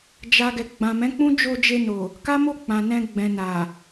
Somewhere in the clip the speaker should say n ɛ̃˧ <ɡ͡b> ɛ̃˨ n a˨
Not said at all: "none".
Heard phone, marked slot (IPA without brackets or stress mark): ɡ͡b